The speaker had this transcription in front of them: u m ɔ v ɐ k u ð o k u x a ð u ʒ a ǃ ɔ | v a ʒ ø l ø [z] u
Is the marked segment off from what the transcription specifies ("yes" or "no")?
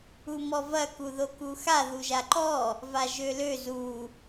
no